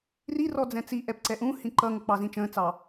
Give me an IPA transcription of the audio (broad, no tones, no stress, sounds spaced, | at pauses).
r i r ɔ d͡z ɛ̃ t͡s i ʔ ɛ p ǀ ɛ ʔ ũ h ĩ ǃ ʌ ŋ ə k͡p ɑ z ĩ t͡ʃ ə̃ː t͡s ɑ